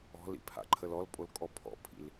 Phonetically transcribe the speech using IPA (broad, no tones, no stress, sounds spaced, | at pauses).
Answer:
ɔ̤ l ḭ pʰ a̰ ǃʰ ə l ɔ l pʼ o l kʼ ɔ pʰ ɔ̰ pʰ ḭ l